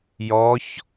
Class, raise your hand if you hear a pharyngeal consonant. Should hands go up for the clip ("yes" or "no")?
no